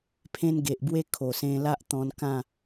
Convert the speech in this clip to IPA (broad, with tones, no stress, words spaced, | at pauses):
pʰẽ˦n ɡe˨ʔbwe˦ kʰo˨˩sẽ˧la˦ʔt̪ɔ̃˧n kã˥˧